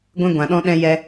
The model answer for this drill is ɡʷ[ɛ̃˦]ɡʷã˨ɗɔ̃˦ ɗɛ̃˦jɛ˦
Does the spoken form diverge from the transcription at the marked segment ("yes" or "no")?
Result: no